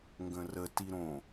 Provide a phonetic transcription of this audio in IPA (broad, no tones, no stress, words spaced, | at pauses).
ŋɡə̃rə tiɾõ